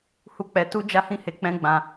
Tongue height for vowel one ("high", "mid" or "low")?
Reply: high